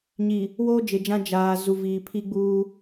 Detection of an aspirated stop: present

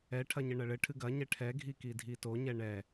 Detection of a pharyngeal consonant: absent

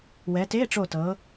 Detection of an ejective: absent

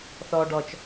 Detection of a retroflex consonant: present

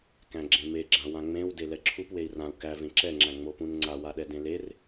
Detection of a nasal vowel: present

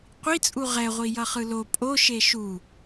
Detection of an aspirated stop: absent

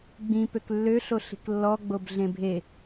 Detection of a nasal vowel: present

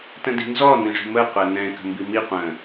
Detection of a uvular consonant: present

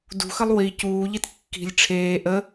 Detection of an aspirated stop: present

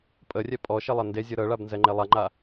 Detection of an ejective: present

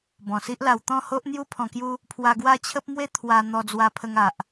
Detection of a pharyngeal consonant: absent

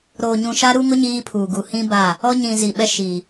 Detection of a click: absent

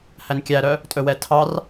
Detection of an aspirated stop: present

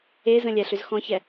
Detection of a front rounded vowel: present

